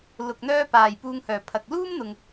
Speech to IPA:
l ʊ˨ k̚ n̪ œː˧ p aː˨˩ j p uː˧ ŋ h œː˨˩ pʰ ɐ˨ k̚ l uː˥ m n̪ ʊ˨ ŋ

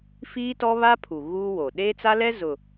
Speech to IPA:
f iː˦ t ɔ˦ β a˦ pʰ u˨ ɣ uː˦ w o˨ ɗ eː˦ t͡s a˦ l ɛ˦ z ʊ˨

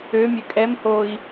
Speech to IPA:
ø mʲ ø kʼ ɛ m h oː i̯

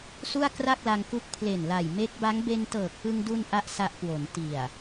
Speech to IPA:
s u˥˩ a̯ k r a˥˩ k̚ l a˧ ŋ k u˦˥ k̚ pʰ l e˨˩ n l a˨˩ j m e˦˥ k̚ b a˦˥ ŋ b e˧ n t ɤː˨˩ k̚ p ɯ˧ ŋ d u˧ n ʔ a˦˥ ʔ s a˦˥ ʔ k w o˩˦ n t i˨˩ a̯

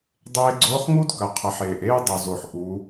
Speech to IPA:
dˤ eː˧ ɡ͡ǀ oː˧˥ χ ŋ u˥ d k ɐ˩˧ qʰ ɐ˩˧ ħ eː˩ ʔ eː˥ dˤ ɵ˩ z o˩ ħ ʔ u˩˧

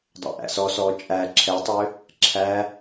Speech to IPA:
dˤ æ̰ ʔ æ̰ s ɔ s ɔː t͡ʃʼ æ ǁʰ ɛ tˤ ø | ǁʰ æ

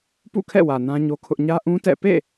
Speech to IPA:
p ṵ˦˨ kʰ ɛ̰˦˨ w ä˨ n ã˦ ɲ o˦ kʰ ʊ˦ ʔ ɲ ä˦ ʔ ũ˦ t ɛ̰˦˨ p ḛ˦˨

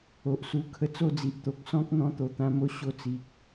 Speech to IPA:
o˨ ʔ s u˧ kʰ ə˧ t͡s o˥˧ d͡z i˨ ʔ t̪ o˨ k̚ s ɔ̃˦ k̚ n̪ ɔ̃˧ t̪ o˨˩ t̪ ã˧ m o˧ ɕ o˧ t͡s i˨ k̚

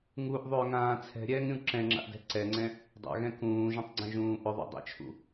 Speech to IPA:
ŋ u ʔ ðˤ ʏː ŋ ãː t͡sʰ ɛ̤ ɾʲ ɛː ŋ ɾʲ ũ ǁ ɛ̃ ŋ͡ǁ a̰ ʔ d ɛ̤ ǀ ɛ ŋ͡ǀ ɛ̃ | dˤ a̰ ɣ ɛ̃ k ũː ʒ ũ tˤ ɡ͡ǀ ɛ̃ ʒ ũː ʔ ʏ ðˤ ṵ dˤ ɛ̰ t͡ʃʰ ṵ

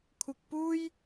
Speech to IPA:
kʷʰ ɪ˧ k̚ p uː˥ j

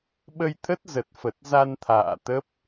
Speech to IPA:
ɓ ə˧ j t̪ʰ ə˦˥ t̚ z ə˨˩ t̚ f ə˨˩ t̚ z a˧ n t̪ʰ a̰ː˧˨ t̪ ə˦˥ p̚

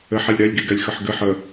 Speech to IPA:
ɘ ħ ɛ lʲ ɾ ɛ lʲ ɡ i ɡ ɛ lʲ x ə ħ ɡ ɘ ħ ə

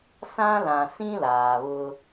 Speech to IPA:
s ã˦ l ã˨ s ĩ˦ l aː˨ β ʊ˦

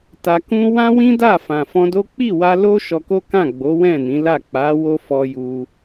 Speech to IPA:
t a˧ k ũ˦ w ã˦ w ĩ˦ d a˦˨ f ã˨ f ɔ̃˧ d o˦ k͡p i˦˨ w a˧ l o˦ ʃ ɔ˧ k o˦ k ã˦˨ ɡ͡b o˨˦ w ɛ̃˦˨ n ĩ˨˦ l a˦˨ k͡p a˨˦ w o˦ f ɔ˧ j u˧

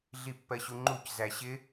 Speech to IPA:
ɮ i pː ɜ ɕ u ŋ͡ǃ u c z æ ɕ ɪ

